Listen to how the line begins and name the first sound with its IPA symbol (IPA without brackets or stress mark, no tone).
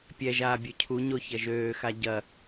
pʲ